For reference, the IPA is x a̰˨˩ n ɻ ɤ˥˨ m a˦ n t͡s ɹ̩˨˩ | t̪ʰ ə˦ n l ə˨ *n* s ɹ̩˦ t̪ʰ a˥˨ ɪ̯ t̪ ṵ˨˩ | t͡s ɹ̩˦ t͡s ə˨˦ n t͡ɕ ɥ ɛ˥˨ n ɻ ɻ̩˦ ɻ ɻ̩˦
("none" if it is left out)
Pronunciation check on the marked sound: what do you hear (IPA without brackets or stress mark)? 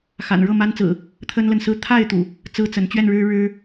n